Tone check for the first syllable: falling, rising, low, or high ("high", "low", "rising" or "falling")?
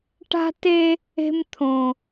high